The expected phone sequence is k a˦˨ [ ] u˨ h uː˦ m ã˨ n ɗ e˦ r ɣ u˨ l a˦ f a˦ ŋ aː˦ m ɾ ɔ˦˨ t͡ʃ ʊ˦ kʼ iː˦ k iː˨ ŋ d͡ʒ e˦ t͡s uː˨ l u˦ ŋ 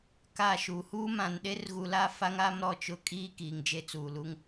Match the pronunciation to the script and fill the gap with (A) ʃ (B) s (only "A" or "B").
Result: A